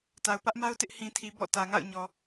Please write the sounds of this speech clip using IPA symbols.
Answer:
t a˨ ʊ̯ p ä˦ ʔ m a˦ ʊ̯ t ɪ˦ ʔ h ĩ˨ tʰ i˨ b ɔ̰˦˨ t ä˨ ŋ a̰˦˨ ʊ̯ ɲ ɔ˨

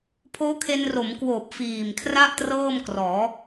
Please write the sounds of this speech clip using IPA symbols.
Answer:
pʰ oː˦˥ kʰ e˧ n r o˩˦ m k w oː˨˩ p̚ f iː˨˩ m kʰ r a˥˩ ʔ t r ɤː˥˩ m k r ɔː˩˦

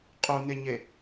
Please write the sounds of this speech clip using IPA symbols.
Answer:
qʼ u n e ɲ e

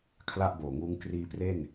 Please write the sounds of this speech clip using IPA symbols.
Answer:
kʰ l a˥˩ ʔ b oː˨˩ ŋ uː˦˥ ŋ k r iː˧ p r e˥˩ n

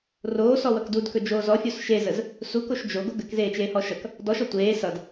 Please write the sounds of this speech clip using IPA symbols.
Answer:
r oː s ɔ w ʌ k d u d k ɵ d͡ʒ oː z ɔ fʲ o s ʃ e z ə z | s u k o ʃ d͡ʒ o ɡ o ɡ ə k z eː t͡ʃ eː h ɔ ʃ ʌ k | d ɔ ʃ ɔ tʷ eː s ʌ d

